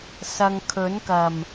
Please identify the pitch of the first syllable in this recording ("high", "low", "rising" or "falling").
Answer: low